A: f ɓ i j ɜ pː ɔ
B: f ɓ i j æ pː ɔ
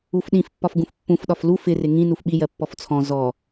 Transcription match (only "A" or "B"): A